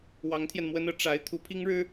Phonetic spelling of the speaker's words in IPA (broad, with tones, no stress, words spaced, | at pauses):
wɑ˧˥ŋt̪ʰjɛ˧nmwə˥nɤ˧˥ ʈ͡ʂa˧˥ɪ̯ t̪ʰu˧˥pʰi˥ŋɻɻ̩˥